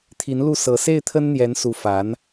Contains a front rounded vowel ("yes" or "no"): no